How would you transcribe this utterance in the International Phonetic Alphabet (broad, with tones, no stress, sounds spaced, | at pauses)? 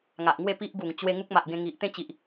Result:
ŋ a˨ ʔ ŋ w e˥˧ p i˦ ʔ ɡ u˨˩ ŋ t͡ɕ w e˧ ŋ u˦ k̚ m a˨ ʔ ɡ ẽ˧ ŋ i˨ ʔ t̪ ẽ˥˧ t͡ɕ i˨ ʔ